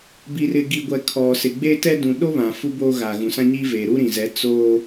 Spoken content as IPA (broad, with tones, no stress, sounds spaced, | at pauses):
b i˨ r ɪ˨ ɡ i˨ ɡʷ ɛ˨ kʰ ɔ˨ s ɪ˨ ɡ͡b e˦ t ɛ˦ d ũ˨ ɗ o˦ β ã˨ f u˦ b oː˦ ɣ a˨ ɣ ũ˨ s ã˦ ɲ iː˦ v eː˨ ɾ u˦ ɾ ĩ˨ z ɛ˨˦ t͡s oː˦